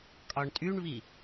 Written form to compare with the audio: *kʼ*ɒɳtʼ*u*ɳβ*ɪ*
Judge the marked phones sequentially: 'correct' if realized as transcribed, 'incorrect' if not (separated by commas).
correct, incorrect, incorrect